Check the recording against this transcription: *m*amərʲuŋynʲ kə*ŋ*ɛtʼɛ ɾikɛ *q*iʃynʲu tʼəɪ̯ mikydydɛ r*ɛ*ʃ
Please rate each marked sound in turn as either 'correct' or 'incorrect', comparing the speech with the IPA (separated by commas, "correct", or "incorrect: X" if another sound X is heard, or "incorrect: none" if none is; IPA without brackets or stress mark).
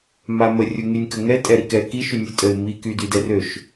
correct, correct, incorrect: k, incorrect: ø